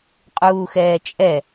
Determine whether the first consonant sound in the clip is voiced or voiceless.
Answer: voiceless